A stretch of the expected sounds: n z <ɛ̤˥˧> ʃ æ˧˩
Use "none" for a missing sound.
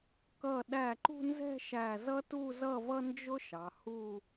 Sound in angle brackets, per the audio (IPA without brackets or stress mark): ɛ̤˥˧